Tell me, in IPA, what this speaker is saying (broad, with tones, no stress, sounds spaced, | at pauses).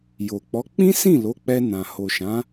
j o˨ k͡p ɔ˨˦ k͡p ĩ˦ s ĩ˦˨ l o˨˦ k͡p ɛ˧ n ã˨ h o˨ ʃ ã˨˦